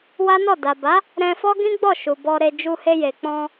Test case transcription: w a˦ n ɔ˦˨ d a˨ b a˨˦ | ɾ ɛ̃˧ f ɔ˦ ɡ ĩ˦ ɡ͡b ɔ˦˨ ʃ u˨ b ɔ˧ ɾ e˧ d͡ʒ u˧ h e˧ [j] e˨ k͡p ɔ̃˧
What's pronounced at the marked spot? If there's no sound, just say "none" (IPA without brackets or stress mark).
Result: j